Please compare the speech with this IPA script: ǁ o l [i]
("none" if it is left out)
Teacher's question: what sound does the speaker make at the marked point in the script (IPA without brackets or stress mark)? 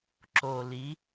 i